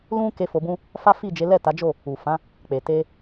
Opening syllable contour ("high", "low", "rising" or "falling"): high